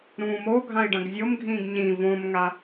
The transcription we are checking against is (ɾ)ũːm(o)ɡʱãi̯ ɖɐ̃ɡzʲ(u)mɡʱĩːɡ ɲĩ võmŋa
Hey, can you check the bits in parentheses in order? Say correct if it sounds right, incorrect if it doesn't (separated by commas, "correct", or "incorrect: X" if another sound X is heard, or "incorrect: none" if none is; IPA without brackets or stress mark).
correct, correct, incorrect: o